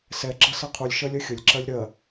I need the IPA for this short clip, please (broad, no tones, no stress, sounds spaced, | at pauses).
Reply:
s ɛ ɡ͡ǁ ʌ s ʌ qʰ u lʲ ʃ ɜ lʲ ɜ xʲ ə lʲ ǁ ɜ lʲ ɾ ɜ